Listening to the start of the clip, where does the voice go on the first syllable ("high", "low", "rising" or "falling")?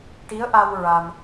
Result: rising